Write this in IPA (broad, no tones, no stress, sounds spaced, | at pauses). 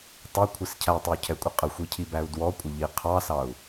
tˤ ʊ kʷʰ ɪ s cʰ æ tˤ ɪ u̯ cʰ ɛ kʷʼ ɪ qʼ ə xʷ i cʰ i b æ u̯ d w ɔ kʷʼ ə ʎ i qʰ ɑ s ɑ u̯